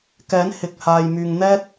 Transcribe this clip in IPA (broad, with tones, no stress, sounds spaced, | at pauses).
k ɛː˨˥ n h ɪ˨ k̚ h aː˨ j m yː˨ ŋ n̪ ɛː˥ t̚